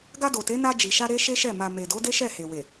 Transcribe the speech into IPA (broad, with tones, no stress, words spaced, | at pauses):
ɡa˧do˨te˨˦ na˧d͡ʒi˨ʃa˧ ɾe˦ʃe˦ʃɛ˦˨ ma˨me˨do˨˦ de˦ʃɛ˦˨he˨we˨